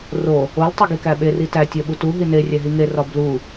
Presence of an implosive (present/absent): present